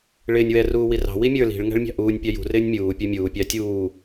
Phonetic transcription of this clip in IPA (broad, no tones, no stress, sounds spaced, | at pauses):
ɭ ɪː nʲ w ɛ r uː w i r ɑ̤ w i mʲ ə˞ l i̤ ɭ ŋ æ̤ ɭ mʲ ɑ̤ ʔ uː nʲ pʲ ɑ j ṳ r ɪː nʲ mʲ uː pʲ ə˞ mʲ uː pʲ ɑ tʲ uː